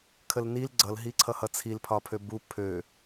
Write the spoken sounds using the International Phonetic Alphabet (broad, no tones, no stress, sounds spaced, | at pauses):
kʰ ə l n i l ɡ͡ǀ ʌ l ɦ i ǀʰ ʌ h ʌ t͡sʰ i l pʰ ɒ pʰ ø b u pʰ ø